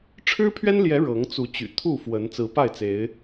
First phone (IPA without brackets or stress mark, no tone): ʈ͡ʂʰ